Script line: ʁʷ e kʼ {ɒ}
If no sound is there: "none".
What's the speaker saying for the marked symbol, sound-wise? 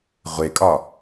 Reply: ɒ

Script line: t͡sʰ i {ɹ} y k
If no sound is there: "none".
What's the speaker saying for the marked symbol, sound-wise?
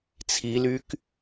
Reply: l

